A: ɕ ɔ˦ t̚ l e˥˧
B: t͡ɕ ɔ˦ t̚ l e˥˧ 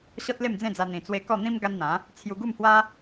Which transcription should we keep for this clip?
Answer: A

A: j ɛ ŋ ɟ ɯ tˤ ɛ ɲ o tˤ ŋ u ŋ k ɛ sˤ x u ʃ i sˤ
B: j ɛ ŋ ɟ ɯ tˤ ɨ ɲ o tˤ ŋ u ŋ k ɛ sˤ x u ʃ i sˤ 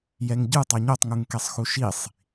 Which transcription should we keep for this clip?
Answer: A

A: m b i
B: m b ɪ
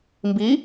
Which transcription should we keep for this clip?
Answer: A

